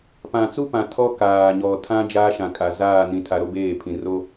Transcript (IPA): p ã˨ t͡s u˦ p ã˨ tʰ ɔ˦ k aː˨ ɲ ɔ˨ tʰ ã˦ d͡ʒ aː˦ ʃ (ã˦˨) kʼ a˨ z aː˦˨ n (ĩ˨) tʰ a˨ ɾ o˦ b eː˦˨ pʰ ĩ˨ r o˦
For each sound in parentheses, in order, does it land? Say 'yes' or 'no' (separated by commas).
no, yes